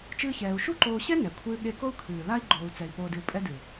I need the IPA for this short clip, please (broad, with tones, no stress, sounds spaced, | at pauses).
t͡ʃ ɨː˦ ç ɛː˧ u̯ ʃ u˦ ǃ oː˧ ɕ ɛ˦ n ɛ˨ kʷʰ ɨː˧ ɠ e˧ k o˦ u̯ kʰ ɨː˨ l a˦ i̯ ɡ͡ǃ oː˧ u̯ t͡s ɛ˧ i̯ p oː˧ d ɨ˧ u̯ pʼ ɛ˦ d ɨ˨